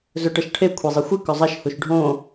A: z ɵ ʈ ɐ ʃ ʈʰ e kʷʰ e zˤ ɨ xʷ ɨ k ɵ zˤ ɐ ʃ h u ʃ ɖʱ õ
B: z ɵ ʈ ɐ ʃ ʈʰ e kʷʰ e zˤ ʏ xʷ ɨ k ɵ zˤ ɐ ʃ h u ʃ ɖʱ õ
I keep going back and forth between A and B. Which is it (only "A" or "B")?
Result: A